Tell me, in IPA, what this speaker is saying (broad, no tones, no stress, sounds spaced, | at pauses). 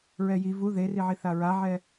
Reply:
ɹ ɛ j i v u ð e r i ʕ i θ a ɹ a ʕ ɛ